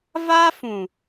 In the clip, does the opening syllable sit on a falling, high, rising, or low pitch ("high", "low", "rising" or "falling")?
high